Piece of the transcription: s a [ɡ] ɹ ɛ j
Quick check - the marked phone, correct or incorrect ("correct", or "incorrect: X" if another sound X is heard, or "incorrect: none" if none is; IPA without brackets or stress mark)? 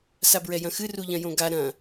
incorrect: b